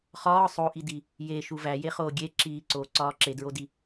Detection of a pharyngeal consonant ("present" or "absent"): absent